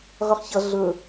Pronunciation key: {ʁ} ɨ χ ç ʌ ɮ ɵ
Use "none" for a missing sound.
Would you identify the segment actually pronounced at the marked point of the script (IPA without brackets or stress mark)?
ʁ